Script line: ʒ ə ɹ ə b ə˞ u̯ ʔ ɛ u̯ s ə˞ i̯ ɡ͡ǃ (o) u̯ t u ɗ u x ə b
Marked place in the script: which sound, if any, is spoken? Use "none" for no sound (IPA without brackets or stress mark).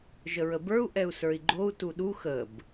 o